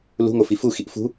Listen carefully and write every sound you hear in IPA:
l ṳ ŋ o f i f u x i ʔ f ṳ

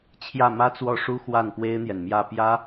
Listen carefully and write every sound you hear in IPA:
t͡ɕʰ j ä˥˩ m ä˥ t͡s w ɔ˥˩ ʂ u˥ x w a˥˩ n p w e˥ ɪ̯ n̪ j ɛ˨ n m j ä˥˩ p j ä˥

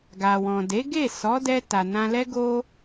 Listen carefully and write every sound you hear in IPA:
ɡ a˨ w ɔ̃˨ d e˨˦ ɡ e˦˨ s ɔ˨˦ d ɛ˧ t a˨ n ã˧ l ɛ˦ ɡ o˦

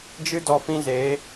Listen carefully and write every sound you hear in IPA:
d͡ʒ ɨ˦ d ɔ˧ f ĩ˦ z eː˨˦

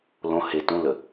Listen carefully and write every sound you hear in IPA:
l õ h e t ũ l ə

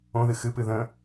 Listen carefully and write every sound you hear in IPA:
õ ð ɨ x ɨ p ɨ ð ə̃

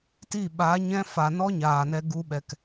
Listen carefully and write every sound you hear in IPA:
t i˦˨ ɓ a˨˦ ɲ ɛ̃˦ f a˨ n ɔ˦ ɲ aː˨ n ɛ˧ ɡ u˧ ɓ ɛ˨ k

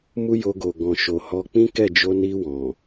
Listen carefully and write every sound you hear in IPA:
m u˦ j o˧ ɡ o˨ ɡ ɔ̃˨ ʃ o˨ h ɔ˧ k͡p ĩ˦ k ɛ˦˨ d͡ʒ o˧ n i˧ w ɔ̃˨

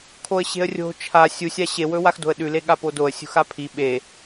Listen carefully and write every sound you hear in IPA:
kʰ o ə̯ ɕ e̤ ə̯ rʲ o̤ t͡ʃʰ a sʲ u sʲ a ɕ e w ɵ w a x d o̤ ə̯ ɗ ʉ l e ɠ a p o d o ə̯ sʲ ṳ x a pʰ i ɓ e

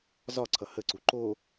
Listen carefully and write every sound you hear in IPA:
z ɒ ǀʰ ʌ h ə ǀ u ǃ o

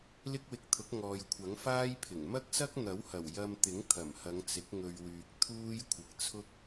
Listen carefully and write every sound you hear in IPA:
l ɪ˥ k̚ w ɪ˧ k̚ t̪ʰ ʊ˨˥ k̚ ŋ ɔː˨ j kʷʰ ɐ˨˥ ŋ f aː˥ j pʰ ɪ˨˩ ŋ m ɐ˥ k̚ s ɐ˥ k̚ n̪ ɐ˨˥ w h ɐ˨˩ w j ɐ˧ m t̪ ɪ˨˥ ŋ t̪ʰ ɐ˨˩ m h ɐ˨˧ ŋ t͡s ɪ˨˥ k̚ ŋ ɵ˨ ɥ w yː˨ k̚ t̪ʰ uː˥ j kʷʰ ɪ˨ k̚ t͡sʰ ʊ˥ k̚

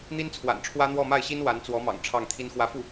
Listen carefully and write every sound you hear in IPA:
n̪ i˥ n t͡sʰ w a̰˨˩ n ʈ͡ʂʰ w ä˥ n̪ w ɔ˥˧ m a˥˩ ɪ̯ ɕ i˥ n w a˧˥ n t͡s w ɔ˧˥ m ɑ̰˨˩ ŋ ʈ͡ʂʰ ɑ˥˩ ŋ t̪ʰ i˥ n x w ä˥ f u˥˩

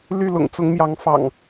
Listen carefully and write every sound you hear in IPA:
l y˥˨ l ʊ̰˨˩ ŋ t͡s ʊ˨˦ ŋ m j ɑ˨˦ ŋ f ɑ̰˨˩ ŋ

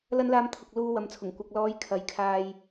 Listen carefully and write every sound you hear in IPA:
l ɐ˧ n l aː˨˧ m t̪ʰ ʊ˨ k̚ l uː˧ w ɐ˨ m t͡sʰ ʊ˨˩ ŋ kʷ ɐ˨ k̚ l ɔː˨˧ j kʰ ɐ˨ j kʰ aː˧ j

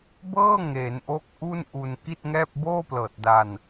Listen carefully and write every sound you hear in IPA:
b ɤː˥˩ ŋ e˩˦ n ʔ o˦˥ k̚ ʔ u˥˩ n ʔ u˧ n k i˥˩ t̚ ŋ ɛː˥˩ p̚ b oː˥˩ p l ɤː˨˩ t̚ d a˧ n

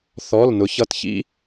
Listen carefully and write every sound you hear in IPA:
θ ɔ˧˥˧ l n ʊ˨˥ ç ʌ˧˥˧ t ç ḭ˥

